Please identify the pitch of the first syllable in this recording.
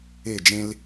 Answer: falling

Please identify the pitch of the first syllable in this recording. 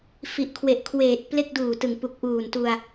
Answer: low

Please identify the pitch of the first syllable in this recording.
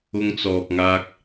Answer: high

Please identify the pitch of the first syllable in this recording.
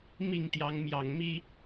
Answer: falling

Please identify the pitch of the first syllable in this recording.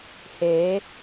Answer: rising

